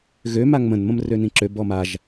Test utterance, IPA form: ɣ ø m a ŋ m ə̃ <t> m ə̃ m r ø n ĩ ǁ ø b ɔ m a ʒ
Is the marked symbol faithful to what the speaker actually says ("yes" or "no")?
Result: no